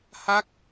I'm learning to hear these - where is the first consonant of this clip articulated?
throat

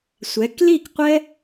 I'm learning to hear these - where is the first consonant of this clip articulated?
tongue tip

